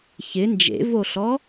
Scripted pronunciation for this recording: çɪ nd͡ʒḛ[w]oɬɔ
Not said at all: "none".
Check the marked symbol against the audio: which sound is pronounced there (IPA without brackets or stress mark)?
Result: v